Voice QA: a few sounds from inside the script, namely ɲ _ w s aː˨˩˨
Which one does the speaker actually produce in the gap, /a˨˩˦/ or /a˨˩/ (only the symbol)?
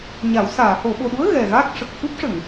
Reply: a˨˩˦